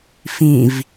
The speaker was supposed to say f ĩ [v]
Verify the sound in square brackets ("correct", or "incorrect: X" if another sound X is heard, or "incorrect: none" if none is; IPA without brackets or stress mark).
correct